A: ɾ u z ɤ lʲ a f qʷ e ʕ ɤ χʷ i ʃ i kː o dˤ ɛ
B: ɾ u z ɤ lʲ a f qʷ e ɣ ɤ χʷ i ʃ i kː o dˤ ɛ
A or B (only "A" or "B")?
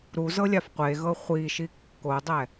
B